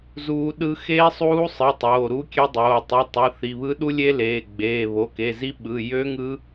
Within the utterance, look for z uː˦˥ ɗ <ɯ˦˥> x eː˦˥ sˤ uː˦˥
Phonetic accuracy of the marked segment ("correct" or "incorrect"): correct